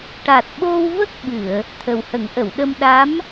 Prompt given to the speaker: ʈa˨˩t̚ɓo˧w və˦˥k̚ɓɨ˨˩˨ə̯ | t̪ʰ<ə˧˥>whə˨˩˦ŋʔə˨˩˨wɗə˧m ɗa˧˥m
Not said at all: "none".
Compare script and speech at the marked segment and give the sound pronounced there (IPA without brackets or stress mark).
ə˨˩